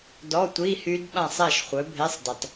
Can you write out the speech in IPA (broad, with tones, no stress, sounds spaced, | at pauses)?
d ɔ˧˥˧ tʷ i˧˥˧ h y˦˥ d ɓ ã˥˨ sˤ ɛ˥˨ ʃ χʷ œ˨˥ bʱ e˧˥˧ sˤ d ə˨˩ tˤ